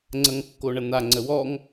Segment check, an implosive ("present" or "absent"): absent